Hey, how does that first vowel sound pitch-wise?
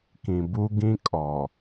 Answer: low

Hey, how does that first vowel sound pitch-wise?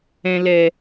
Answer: low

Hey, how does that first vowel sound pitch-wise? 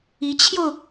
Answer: rising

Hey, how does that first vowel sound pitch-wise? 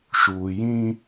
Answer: low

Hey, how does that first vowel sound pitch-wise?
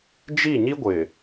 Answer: falling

